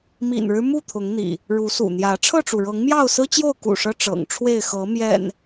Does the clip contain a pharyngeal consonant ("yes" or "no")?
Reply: no